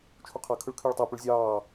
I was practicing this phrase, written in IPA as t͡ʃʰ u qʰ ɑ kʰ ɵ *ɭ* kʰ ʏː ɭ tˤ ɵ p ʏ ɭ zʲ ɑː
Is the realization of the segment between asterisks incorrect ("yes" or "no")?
no